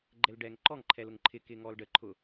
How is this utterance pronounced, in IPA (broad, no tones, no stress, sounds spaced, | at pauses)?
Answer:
ɡ͡ǃ ɛ l ɖ ɛː ŋ ǃ ɔ ŋ ǃʰ ɛ l ʊ ŋ ǃʰ ɪ k ɪː ŋ ɔː l ɖ ə ǃʰ ʊ